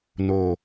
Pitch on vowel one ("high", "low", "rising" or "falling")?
low